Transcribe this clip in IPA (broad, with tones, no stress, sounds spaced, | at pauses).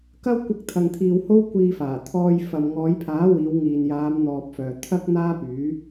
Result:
k ɐ˥ w kʷ ɐ˧ k̚ t̪ʰ ɐ˨ ŋ t̪ʰ iː˨ w h o˥ w kʷ iː˧ f aː˨˩ t̪ʰ ɔː˧ j f ɐ˨ m ŋ ɔː˨˧ j pʰ aː˨˥ w iː˨˧ w ŋ iː˨ n j aː˨˧ m n̪ ɔː˨ p̚ f œː˨ t̪ʰ ɐ˥ k̚ n̪ aː˥ p yː˨˥